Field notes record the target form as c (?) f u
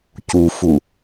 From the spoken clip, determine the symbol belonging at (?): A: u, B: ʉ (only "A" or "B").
A